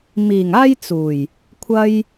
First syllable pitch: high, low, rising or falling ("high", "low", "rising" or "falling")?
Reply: low